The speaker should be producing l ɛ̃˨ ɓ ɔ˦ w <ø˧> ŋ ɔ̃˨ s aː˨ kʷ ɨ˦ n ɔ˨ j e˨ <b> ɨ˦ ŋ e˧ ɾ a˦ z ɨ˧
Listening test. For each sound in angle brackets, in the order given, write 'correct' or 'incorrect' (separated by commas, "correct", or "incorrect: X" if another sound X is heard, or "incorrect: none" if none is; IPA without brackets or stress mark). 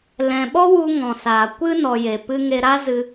incorrect: u˧, incorrect: p